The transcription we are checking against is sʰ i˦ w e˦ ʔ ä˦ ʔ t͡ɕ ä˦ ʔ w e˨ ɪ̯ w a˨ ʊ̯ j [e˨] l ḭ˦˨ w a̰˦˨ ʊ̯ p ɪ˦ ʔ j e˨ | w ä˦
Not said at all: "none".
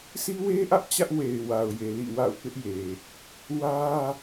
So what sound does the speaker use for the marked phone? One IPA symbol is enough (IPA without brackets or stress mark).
e˨